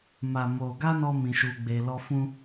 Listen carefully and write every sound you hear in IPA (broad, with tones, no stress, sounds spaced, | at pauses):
m a˨ m o˨ ɡ a˧ n ɔ˦ m ĩ˧ ʃ u˧ ɡ͡b e˧ l ɔ˦ f ũ˦